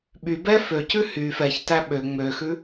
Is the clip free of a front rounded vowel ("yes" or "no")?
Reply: no